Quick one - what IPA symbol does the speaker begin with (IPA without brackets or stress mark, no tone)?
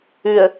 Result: ʉ